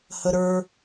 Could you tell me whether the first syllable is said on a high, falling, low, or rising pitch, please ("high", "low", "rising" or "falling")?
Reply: high